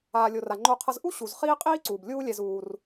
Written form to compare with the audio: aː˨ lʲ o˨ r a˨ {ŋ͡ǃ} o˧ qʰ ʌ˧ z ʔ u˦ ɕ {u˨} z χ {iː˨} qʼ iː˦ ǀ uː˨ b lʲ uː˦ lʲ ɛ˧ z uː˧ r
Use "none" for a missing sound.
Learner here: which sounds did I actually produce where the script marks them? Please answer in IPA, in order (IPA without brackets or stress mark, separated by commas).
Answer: ŋ͡ǃ, u˨, iː˦